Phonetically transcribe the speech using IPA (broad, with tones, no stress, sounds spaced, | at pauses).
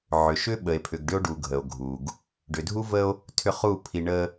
ʕ ʏ˨ ʃ ʏ˦ ɓ ə˨ e̯ pʰ ʏ˨ ɡ ɖ ʏ˦ o̯ ɖ u˨ ɡʱ ə˨ o̯ ɡʱ u˨ ɡ | ɖ ʏ˨ dʱ u˦ v ə˦ o̯ | tʰ ʏ˦˨ χ u˦˨ pʰ i˨ ɳ ə˦